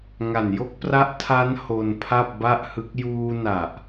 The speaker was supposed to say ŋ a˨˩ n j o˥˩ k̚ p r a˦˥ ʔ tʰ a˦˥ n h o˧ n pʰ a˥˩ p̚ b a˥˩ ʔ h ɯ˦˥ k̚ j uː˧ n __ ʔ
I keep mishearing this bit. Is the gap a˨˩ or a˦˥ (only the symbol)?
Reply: a˨˩